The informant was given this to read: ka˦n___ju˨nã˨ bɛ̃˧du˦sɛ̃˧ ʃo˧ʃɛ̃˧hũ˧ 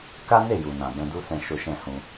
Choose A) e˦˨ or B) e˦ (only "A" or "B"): A